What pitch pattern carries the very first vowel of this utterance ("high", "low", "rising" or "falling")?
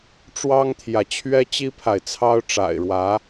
high